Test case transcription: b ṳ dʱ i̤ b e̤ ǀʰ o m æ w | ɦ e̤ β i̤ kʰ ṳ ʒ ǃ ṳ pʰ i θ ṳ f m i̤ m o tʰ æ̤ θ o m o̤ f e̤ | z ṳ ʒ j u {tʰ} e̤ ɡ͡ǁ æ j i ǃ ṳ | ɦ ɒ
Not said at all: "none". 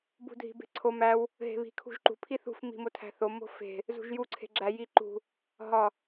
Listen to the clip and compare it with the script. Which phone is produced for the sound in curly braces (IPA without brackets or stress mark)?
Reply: ǀʰ